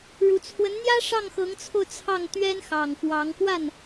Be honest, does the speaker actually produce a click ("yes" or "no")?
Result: no